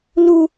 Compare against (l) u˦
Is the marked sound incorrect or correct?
correct